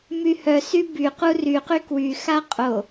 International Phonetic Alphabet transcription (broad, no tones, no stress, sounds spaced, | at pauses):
m y h œ s y b y q u r y q y k w y x a qʼ o